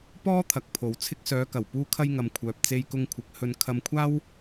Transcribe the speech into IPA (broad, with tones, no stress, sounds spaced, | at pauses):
p ɔː˥ t̪ʰ ɐ˨˥ k̚ pʰ o˨ w t͡sʰ ɪ˧ k̚ s œː˨˧ k ɐ˨˩ w p uː˧ kʰ ɐ˧ j ŋ ɐ˨ m kʷʰ œː˨ p̚ t͡s e˧ j k ʊ˧ ŋ kʷʰ ɪ˨˥ k̚ h ɵ˧ n kʰ ɐ˧ m kʷʰ aː˥ w